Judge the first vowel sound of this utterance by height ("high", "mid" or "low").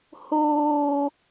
mid